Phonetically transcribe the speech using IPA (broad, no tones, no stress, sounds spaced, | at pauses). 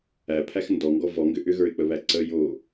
æ pʰ æ x n d ɔ ŋ ɡ ɔ v ɔ ŋ ɡ ʏ ʔ ʏ ɣ ə˞ ɪ̯ k͡p ə β æ ǀ ə j o